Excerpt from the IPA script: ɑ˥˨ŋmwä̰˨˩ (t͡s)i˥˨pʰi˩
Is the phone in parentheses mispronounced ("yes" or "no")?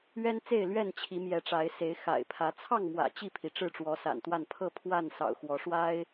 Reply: yes